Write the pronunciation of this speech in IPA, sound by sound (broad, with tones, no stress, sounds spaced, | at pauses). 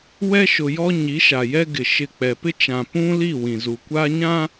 w ɛ˦ ʃ ʊ˨ j ɔ˦ ɲ i˨˦ ʃ a˨ j ɛ˦ ɡ ɪ˨ ʃ ɪ˦˨ k͡p ɛ˨ p ɪ˦ t͡ʃ ã˨ p ũ˦ l i˦˨ w ĩ˨ z u˨ kʷ aː˦ ɲ ã˦